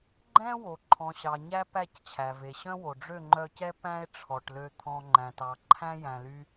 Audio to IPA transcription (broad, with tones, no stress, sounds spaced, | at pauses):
ɡ͡ǃ ɛ̃˦ w o˨ ǃʰ ɔ̃˨ ɕ ɑ˨ ɲ æ˧ p æ˦˨ c t͡ɕʰ æ˨ v e˨ ɕ œ̃˦ w o˨ ɖ͡ʐ ø˦˨ ŋ͡ǃ œ˧ c ɛ˦ p æ̃˦ e̯ ʈ͡ʂʰ ɔ˨ ʈ l ø˧ t̪ʰ ɔ̃˧ ŋ͡ǃ æ̃˨ t ɑ˨ ǃʰ æ̃˦ j æ̃˨ l y˧